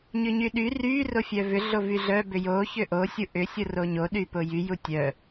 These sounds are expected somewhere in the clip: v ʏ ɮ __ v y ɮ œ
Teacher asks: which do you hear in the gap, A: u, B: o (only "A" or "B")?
B